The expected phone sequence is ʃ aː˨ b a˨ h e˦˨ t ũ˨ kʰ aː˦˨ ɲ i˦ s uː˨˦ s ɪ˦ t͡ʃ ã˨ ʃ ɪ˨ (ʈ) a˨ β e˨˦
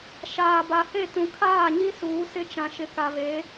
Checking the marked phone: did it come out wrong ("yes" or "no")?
yes